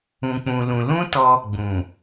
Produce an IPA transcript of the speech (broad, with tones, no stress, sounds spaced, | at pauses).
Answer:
ũ˧ k͡p ũ˧ l ũ˧ l ũ˦ t ɔ˧ | ɡ͡b ũ˨